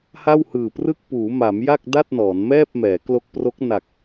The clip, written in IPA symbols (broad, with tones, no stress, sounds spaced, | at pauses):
h a˥˩ w h ɯː˨˩ p r ɯ˥˩ k̚ p uː˩˦ m a˩˦ m j a˥˩ k̚ d a˥˩ t̚ n ɔː˩˦ n m ɛː˥˩ p̚ m ɛː˩˦ k l o˦˥ k̚ p r o˦˥ k̚ n a˨˩ k̚